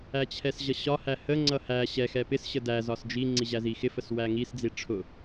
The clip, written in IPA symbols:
æt͡ɕʰɛsʑʌɕɒ hæhə ŋ͡ǀʌhæ ɕɛ xɛpɪs ɕədæ zɒsd͡ʒi ŋ͡ǀiʑæzixɪ fəswæŋis d͡ziʈ͡ʂʰʊ

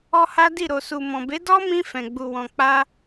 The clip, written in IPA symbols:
ɔ˦ha˦di˦˨ ɾo˨su˨mɔ̃˨be˨˦ dɔ˦mĩ˧ fɛ̃˨ɡ͡bu˨wɔ̃˨ k͡pa˧

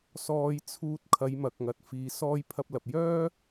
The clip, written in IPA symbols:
sɔː˧j t͡sʰuː˧t̚ kʰɐ˨˧jmɐ˨k̚ŋɐ˨t̚ fiː˨sɔː˧jpʰɐ˧p̚ lɐ˨p̚jœː˥

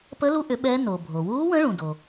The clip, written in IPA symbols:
pə˧˥lu˧˥ʔʏ˩˥ ɓɛ˧˥no˩ bʱo˩wuː˧˥wə̃˧˥ ɭũ˩do˩

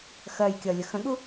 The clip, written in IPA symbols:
xɜjkʲʌ lʲəxə̃ɠu

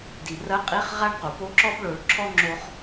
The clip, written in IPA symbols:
di˩rɐ˧˥qʼi˧˥χ ʁa˥ɳ qu˩po˧˥ǁɔ˥b ɭo˧ɭǁʰɔ˥ ŋ͡ǁo˥χ

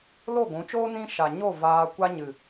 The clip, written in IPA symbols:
lo˦˨ɡʷũ˨˦t͡ʃoː˦ nĩ˦ ʃa˨ɲo˦˨ vaː˧ kʷa˦ɲɨ˨

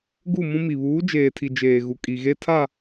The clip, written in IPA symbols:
ɡu˦˨mũ˦mi˨ βuː˨˦d͡ʒeː˨tʰi˨ d͡ʒeː˨ɣu˨ kʼi˨ɣe˦tʰa˦˨

